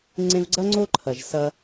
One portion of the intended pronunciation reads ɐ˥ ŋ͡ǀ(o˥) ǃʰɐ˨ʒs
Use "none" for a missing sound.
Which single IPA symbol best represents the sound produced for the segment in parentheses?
o˥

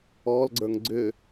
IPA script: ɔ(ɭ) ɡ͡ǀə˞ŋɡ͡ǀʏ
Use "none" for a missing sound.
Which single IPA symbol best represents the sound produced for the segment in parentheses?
l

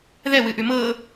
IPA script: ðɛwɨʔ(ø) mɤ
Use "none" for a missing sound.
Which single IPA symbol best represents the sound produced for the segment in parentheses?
ʉ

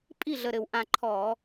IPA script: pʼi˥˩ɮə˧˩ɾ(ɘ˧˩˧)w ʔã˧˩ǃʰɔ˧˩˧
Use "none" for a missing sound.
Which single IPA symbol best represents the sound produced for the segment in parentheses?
ɘ˧˩˧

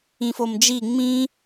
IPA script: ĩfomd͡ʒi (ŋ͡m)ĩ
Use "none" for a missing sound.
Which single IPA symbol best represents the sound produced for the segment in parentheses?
ŋ͡m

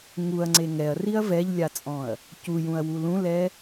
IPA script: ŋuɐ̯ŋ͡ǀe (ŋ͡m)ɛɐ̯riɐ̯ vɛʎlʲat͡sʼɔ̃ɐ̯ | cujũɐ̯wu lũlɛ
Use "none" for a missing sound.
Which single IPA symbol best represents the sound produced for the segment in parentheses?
ŋ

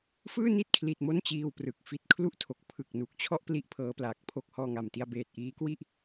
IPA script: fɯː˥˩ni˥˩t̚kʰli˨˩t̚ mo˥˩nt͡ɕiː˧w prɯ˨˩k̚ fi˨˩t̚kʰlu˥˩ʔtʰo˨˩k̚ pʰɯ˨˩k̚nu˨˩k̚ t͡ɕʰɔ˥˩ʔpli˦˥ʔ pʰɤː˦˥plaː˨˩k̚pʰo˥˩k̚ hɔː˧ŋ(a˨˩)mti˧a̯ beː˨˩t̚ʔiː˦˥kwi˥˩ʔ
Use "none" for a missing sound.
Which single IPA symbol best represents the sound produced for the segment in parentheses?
a˨˩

